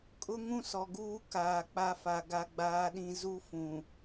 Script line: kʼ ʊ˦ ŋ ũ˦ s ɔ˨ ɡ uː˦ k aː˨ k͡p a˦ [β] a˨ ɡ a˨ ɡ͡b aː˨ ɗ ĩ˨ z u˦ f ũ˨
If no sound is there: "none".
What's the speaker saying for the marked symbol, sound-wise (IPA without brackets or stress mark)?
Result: f